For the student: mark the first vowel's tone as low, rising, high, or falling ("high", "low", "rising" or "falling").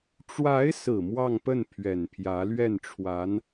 rising